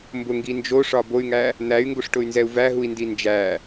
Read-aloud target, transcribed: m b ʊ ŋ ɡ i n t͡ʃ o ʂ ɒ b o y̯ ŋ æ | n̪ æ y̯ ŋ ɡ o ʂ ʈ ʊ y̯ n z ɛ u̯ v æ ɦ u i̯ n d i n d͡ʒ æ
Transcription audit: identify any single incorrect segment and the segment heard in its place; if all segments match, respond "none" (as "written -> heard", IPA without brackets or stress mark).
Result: t͡ʃ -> d͡ʒ